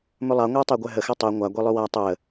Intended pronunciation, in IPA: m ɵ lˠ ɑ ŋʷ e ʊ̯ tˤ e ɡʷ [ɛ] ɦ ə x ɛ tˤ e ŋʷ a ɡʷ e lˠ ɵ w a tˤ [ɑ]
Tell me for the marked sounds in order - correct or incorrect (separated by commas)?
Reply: correct, incorrect